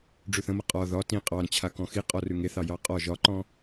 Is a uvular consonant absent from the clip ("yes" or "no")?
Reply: no